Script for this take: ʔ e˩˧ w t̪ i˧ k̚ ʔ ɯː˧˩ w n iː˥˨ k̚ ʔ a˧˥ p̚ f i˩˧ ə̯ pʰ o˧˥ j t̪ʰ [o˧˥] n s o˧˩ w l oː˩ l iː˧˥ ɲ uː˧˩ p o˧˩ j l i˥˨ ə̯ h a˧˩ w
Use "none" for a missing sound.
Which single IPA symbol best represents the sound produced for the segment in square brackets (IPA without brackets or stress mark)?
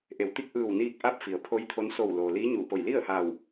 o˧˥